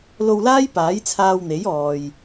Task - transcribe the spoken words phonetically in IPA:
lo˧wlaː˥j paː˨˥jt͡sʰaː˧wn̪e˨˥j ɔː˨j

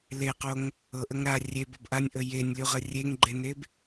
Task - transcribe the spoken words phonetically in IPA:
leqoŋ | ɤʔəŋ ɾa rʲebɤb ʔanʲʔə jenʲlʲuʁə rʲeŋɡ͡ǃeneb

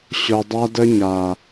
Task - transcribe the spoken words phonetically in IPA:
ɕʊ˨dˤa˦də˦ɲa˨

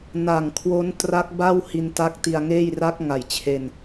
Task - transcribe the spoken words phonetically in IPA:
na˨˩ŋkʰwo˦˥n tra˦˥k̚ ba˥˩w hi˧nta˦˥k̚ti˧a̯ŋeː˥˩j ra˦˥k̚ŋa˨˩jt͡ɕʰe˧n

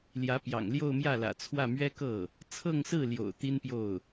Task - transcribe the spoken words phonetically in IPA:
ljä˧˥pjɑ̰˨˩ŋ ljo˥˧ʊ̯mjä˥˩lä̰˨˩t͡sʰwä˥˩ mɥɛ˥kɤ˥˩ | t͡sʰɤ˥˧ŋsɹ̩˥˩ljo̰˨˩ʊ̯ t̪i˥npjo˥˩ʊ̯

